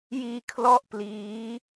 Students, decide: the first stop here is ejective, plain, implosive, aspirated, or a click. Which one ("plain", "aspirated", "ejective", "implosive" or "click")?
aspirated